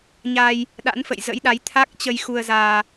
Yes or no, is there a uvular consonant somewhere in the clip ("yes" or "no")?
no